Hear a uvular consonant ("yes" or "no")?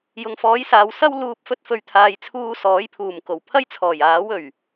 no